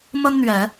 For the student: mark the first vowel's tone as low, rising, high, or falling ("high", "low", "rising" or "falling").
high